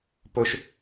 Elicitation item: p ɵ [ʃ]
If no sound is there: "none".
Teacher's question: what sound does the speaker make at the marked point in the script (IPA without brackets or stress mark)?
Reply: ʃ